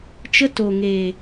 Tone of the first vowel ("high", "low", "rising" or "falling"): high